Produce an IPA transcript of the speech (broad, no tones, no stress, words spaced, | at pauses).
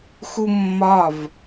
xumːɒv